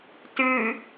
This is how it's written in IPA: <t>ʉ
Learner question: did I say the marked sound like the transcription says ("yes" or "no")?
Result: yes